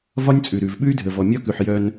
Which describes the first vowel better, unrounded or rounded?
rounded